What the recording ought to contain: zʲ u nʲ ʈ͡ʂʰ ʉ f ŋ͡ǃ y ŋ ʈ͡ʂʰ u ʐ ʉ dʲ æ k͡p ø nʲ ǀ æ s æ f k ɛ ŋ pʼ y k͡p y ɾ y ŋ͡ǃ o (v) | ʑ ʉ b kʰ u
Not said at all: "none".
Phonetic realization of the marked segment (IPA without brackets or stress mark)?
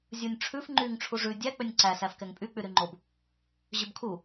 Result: b